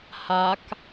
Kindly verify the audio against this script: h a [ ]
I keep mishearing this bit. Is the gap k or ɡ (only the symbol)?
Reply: k